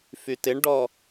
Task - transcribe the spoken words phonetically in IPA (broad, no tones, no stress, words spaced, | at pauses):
fytɪɳɖɔ